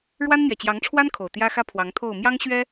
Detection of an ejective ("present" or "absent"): absent